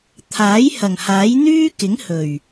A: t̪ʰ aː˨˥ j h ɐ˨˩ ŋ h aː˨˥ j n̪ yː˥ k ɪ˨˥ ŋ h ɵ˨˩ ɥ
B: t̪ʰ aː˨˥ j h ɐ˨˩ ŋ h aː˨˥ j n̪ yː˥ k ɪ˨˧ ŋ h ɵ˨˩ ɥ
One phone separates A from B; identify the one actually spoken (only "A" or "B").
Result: A